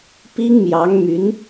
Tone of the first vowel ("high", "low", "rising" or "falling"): high